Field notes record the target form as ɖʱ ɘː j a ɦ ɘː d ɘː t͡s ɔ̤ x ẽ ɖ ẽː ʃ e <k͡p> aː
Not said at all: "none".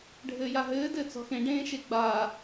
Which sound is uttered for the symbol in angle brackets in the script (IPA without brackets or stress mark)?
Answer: ɡ͡b